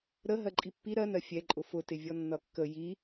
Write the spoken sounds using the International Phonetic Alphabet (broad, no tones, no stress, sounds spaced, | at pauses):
ɾ ə ɦ ɜ ǃʼ i pː i ɾ ɜ n ɜ fʲ ɛ ǃʼ ʊ f ʊ t ɪ vʲ ɔ nː ʌ kː ə j i